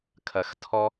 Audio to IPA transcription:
kʰ ɐ˨ x tʰ ɔ˧

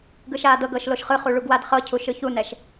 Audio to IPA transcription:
ɡ ɯ ʃ aː d ɤ ɡ ɤː ʃ l o ʃ χ ɯ χ u ɭ u ɡ w a d χ ɤ cʰ u ʃ ɯ ç u n ɛ ʃ

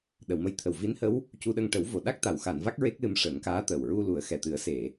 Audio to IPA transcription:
ɗ ə˨˩˨ w m ə˧˥ j t̪ʰ ə˨˩ w v i˧˥ n h ə˧˥ w | c u˧ ɗ ə˧ ŋ ʈ ə˨˩˦ w v o˨˩ ɗ a˦˥ k̚ t̪ a˨˩˨ w x a˨˩˨ n v a˦˥ k̚ ɹ e˦˥ k̚ l ɨ˧ m ʂ ə˨˩˦ ŋ k aː˧˥ t̪ ə˨˩ w ɹ u˧ l u˨˩˦ ə̯ x ɛ˨˩ t̪ ɨ˨˩˦ ə̯ s e˨˩˨

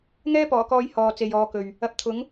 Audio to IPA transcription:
ŋ ɛː˥ p ɔː˨˩ k ɔː˨˧ j h ɔː˨ t͡s e˨ j ɔː˨˧ k ɵ˨ ɥ | ɐ˨˥ p̚ t̪ʰ ʊ˨˥ ŋ

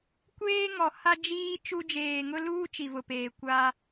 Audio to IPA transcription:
kʷ eː˦ ŋ ɔ˨ h a˦ d͡ʒ iː˦ t͡ʃ u˦ d͡ʒ eː˨ ŋ ʊ˦ l uː˦ t͡ʃ i˨ v ʊ˨ p eː˨ kʷ a˦

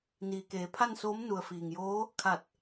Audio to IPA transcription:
n iː˩ k eː˩˧ pʰ a˥˨ n s oː˧˥ m n u˩ ə̯ f iː˩ ŋ j oː˧˥ | kʰ a˧˩ t̚

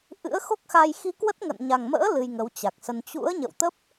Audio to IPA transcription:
ʔ ɨ̰˧˥ ə̯ x o˦˥ k̚ x a˧ j x i˧ k w ə˦˥ t̚ ŋ ə̰˧˨ n ɲ a˨˩ ŋ m ə̰ː˧˥ l ɨ˧ j ŋ ə˨˦ w t͡ɕ a˨˩ k̚ s ə˧ n t͡ɕ ṵ˧˥ ə̯ ɲ ə̰˧˨ w t̪ ə˦˥ p̚

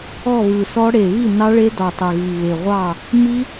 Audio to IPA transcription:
ɔ˥˨ β ɯ˨˩ s ɔ˦˥ ɽ e˨˩ β i˥˨ n ɑ˦˥ ɭ e˦˥ d ɔ˨˩ tˤ ə˨˩ ɣ i˨˩ β e˨˩ ʁʷ ɑ˥˨ | m i˦˥

